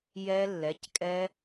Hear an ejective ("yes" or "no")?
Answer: yes